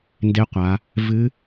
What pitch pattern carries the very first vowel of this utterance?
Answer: rising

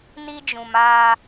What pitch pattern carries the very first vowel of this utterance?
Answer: high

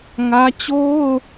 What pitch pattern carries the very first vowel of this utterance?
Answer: high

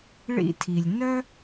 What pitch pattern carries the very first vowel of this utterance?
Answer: high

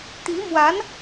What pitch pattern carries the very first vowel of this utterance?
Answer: rising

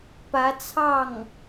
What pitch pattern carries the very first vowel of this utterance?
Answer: rising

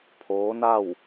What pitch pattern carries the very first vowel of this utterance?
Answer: rising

